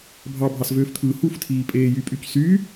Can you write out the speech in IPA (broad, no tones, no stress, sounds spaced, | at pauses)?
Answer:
bʱ ɑ bʱ ɑ s v øː f t̪ʰ ɯː h u f tʰ iː pʼ eː j y pʼ y c s y